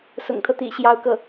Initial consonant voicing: voiceless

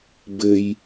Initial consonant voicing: voiced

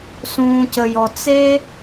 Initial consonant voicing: voiceless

